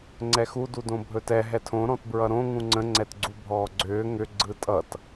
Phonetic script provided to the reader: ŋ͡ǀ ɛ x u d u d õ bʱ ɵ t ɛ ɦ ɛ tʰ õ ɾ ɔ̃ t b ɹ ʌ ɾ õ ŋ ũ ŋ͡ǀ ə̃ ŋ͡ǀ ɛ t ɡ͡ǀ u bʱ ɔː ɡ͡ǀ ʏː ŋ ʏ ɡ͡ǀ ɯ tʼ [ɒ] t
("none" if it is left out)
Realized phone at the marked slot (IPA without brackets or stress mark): ʌ